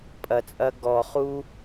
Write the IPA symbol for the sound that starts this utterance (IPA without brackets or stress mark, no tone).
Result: pʼ